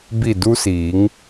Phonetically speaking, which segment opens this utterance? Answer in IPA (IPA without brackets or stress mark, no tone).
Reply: b